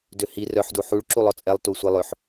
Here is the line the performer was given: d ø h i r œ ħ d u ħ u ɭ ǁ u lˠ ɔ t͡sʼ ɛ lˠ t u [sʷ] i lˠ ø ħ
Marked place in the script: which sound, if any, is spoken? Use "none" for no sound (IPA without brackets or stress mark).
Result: sʷ